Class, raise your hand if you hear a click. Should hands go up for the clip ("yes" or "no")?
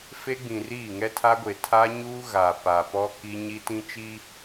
no